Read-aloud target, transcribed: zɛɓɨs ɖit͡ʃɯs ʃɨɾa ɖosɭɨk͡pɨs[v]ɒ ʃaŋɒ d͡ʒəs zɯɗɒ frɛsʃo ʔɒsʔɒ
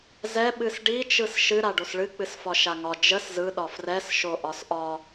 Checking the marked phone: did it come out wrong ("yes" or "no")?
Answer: yes